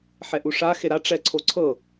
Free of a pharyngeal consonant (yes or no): no